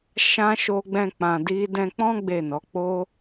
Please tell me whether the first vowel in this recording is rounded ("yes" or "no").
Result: no